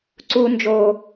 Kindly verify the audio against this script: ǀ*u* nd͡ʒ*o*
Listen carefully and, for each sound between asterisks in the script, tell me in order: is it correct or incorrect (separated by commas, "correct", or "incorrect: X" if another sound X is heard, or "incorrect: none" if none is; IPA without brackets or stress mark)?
correct, correct